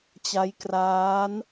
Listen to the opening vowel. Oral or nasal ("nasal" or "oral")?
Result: oral